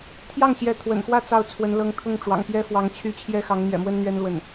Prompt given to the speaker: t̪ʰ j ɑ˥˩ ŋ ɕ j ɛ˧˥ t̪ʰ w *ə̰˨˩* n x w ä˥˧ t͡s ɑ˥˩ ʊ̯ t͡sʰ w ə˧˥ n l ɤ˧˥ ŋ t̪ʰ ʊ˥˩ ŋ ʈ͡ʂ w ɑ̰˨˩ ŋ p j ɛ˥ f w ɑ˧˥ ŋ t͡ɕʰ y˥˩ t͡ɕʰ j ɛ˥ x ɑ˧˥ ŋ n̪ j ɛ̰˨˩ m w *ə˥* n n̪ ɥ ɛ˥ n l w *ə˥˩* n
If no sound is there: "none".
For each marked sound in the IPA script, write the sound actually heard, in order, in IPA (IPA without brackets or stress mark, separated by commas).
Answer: ə̰˨˩, ə˥, ə˥˩